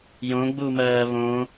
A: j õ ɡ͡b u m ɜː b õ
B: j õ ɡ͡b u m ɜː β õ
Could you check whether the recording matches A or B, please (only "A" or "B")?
B